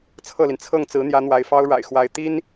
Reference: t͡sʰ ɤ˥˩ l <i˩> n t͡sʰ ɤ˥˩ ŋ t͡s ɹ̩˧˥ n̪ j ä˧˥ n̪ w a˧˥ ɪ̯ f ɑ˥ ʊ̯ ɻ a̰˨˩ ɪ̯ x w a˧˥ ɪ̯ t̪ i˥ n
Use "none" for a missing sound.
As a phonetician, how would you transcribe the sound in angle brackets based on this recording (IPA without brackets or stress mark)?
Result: i˩